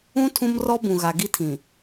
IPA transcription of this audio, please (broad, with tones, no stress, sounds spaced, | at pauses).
ũ˦ tʰ ũ˦ m r ɔ˦ b ũ˨ ɣ a˨ ɡ i˦ tʰ ĩ˨